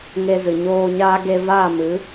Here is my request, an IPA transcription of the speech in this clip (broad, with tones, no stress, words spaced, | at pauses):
ŋe˧zɨ˨ ɲoː˧ɲaː˦ ɡe˧vaː˦˨mɨ˨˦